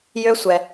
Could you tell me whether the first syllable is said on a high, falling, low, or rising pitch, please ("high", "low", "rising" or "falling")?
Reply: high